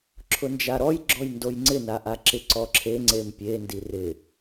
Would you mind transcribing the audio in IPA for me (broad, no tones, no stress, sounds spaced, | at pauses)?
ǁʰ ʊ n d͡ʒ a ɾ ɔ j ɡ͡ǁ ɔ j n d o j ŋ͡ǀ ɪ n a ʔ a ǁ ɪ ǀ ɔ ǁʰ e ŋ͡ǀ e m pʲ e n d i r ɪ